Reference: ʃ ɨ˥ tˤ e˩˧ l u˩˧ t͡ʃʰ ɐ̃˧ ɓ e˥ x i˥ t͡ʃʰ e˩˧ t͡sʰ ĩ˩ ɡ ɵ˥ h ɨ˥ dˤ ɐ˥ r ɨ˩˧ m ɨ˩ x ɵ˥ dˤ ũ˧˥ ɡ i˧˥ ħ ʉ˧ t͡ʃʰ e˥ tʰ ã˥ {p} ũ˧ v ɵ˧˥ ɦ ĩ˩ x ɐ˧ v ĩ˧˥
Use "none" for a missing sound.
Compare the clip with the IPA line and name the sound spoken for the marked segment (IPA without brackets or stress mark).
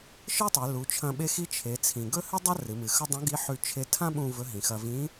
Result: ɓ